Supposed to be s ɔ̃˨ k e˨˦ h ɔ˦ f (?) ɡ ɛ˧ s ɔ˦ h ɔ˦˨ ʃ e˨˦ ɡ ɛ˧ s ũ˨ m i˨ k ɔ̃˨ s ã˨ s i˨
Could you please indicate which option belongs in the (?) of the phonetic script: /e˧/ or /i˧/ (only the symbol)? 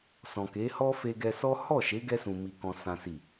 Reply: e˧